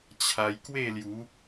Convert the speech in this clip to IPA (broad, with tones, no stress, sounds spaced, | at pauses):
t͡ɕʰ a˧ j k w e˥˧ l j u˨˦